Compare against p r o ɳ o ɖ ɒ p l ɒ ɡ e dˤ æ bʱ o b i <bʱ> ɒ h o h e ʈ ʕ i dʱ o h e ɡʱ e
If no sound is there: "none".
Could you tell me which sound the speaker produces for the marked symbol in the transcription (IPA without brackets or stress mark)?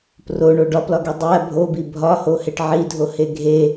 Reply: bʱ